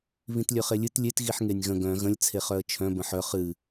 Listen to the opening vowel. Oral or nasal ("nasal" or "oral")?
nasal